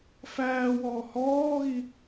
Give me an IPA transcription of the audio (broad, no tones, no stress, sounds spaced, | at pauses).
f æː w ɔː h ɔː ɣ i